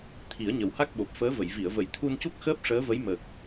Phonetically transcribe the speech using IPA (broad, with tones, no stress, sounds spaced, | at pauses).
t̪ʰ i˨˩˦ ə̯ ɲ ə˨˩ w h a˦˥ k̚ ɓ o˨˩ p̚ f əː˧˥ v ə˨˩˨ j v i˨˩˨ ə̯ v ə˨˩˦ j t̪ʰ u˧ n c u˦˥ k̚ x əː˦˥ p̚ ʂ əː˧˥ v ə˧˥ j m ə˨˩ k̚